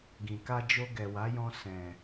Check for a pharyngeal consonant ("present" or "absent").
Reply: absent